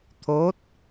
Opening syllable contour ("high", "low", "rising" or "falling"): rising